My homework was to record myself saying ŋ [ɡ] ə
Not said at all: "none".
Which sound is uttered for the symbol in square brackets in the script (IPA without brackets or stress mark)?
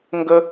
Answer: ɡ